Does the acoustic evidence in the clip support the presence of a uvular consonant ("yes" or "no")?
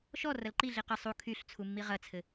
yes